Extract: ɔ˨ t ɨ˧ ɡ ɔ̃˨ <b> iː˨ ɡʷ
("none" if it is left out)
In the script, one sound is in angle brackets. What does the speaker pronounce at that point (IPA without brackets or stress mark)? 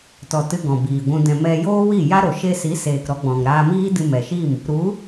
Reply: b